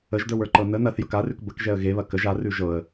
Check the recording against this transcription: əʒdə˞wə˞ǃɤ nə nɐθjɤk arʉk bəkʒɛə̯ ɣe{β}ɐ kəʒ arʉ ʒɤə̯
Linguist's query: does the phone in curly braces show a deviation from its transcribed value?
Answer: no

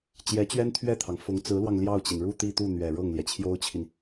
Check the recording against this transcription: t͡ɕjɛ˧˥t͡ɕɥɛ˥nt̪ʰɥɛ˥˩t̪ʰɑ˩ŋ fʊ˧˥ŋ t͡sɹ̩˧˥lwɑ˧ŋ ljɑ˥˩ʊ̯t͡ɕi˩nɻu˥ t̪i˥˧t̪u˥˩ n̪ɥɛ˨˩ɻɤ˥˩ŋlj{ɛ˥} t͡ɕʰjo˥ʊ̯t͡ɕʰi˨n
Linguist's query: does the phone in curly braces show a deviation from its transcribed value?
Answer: yes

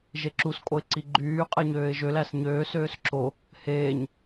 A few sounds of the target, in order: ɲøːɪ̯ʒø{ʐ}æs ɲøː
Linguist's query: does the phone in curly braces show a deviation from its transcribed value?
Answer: yes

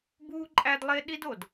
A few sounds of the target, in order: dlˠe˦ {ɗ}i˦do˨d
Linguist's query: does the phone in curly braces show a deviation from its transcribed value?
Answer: no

